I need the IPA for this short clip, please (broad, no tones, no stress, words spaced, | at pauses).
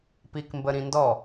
pikmbəɾĩndɔ